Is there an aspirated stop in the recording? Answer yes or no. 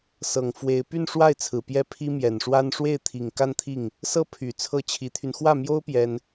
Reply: yes